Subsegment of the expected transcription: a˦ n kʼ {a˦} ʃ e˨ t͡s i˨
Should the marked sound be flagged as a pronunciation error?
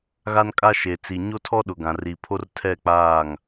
no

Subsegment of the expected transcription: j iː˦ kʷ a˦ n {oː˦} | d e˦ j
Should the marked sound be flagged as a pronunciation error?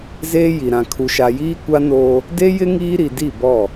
no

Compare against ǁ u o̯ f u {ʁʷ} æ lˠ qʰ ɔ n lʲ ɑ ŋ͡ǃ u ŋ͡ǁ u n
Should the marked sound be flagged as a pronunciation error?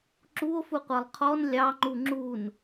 yes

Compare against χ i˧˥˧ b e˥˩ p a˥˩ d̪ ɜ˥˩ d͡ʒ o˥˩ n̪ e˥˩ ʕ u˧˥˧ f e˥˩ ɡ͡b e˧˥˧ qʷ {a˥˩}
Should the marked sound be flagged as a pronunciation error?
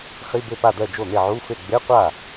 no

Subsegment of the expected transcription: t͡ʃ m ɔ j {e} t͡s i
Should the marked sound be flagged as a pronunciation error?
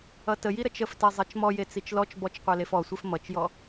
no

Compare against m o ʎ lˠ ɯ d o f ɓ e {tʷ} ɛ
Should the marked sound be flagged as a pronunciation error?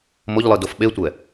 no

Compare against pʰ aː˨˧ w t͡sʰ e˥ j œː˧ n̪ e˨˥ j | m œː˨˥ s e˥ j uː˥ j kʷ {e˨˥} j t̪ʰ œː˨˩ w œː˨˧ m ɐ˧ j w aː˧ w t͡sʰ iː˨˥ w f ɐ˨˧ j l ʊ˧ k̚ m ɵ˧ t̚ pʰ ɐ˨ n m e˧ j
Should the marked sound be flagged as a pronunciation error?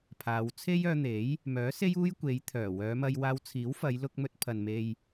yes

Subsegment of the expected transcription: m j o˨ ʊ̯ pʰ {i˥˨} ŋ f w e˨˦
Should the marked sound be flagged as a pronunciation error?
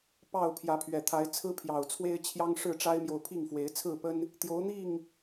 no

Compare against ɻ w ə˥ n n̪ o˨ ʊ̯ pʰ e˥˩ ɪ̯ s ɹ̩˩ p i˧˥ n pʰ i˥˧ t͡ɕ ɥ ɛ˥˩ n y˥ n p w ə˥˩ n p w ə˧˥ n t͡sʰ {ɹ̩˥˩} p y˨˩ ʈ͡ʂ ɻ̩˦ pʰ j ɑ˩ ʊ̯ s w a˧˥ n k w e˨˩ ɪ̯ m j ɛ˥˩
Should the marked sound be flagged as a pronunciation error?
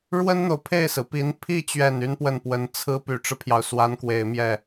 yes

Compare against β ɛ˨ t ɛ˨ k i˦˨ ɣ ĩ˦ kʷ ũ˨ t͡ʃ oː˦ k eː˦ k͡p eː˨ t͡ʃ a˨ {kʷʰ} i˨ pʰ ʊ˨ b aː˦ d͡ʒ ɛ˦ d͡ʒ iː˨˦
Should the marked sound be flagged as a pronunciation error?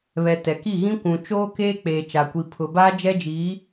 yes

